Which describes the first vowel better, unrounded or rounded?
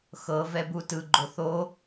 unrounded